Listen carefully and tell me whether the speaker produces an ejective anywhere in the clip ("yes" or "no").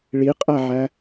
yes